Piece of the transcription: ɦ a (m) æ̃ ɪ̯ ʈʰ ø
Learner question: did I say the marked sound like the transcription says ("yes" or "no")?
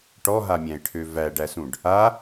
no